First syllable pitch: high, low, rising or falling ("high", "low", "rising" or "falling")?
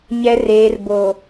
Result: low